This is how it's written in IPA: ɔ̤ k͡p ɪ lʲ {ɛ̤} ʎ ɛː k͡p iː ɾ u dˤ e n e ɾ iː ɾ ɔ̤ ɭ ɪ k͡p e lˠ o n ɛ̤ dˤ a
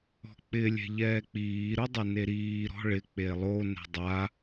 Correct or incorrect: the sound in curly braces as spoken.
correct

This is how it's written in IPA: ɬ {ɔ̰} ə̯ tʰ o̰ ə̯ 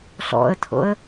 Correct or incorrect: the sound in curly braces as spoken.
correct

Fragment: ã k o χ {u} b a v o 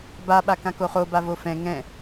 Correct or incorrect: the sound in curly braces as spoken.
incorrect: o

